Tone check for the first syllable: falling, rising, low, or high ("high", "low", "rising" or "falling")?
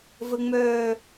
high